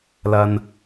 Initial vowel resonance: oral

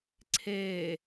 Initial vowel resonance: oral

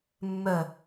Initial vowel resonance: oral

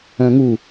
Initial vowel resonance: nasal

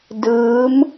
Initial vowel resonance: oral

